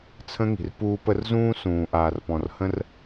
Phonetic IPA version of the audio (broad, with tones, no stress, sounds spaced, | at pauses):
t͡sʰ ə̃˦ ŋ i̤˨ r p uː˦ p ə˦ r z ũː˦ s ũː˨ ʔ aː˨ r p ɔ̃˨ r h ə̃˦ r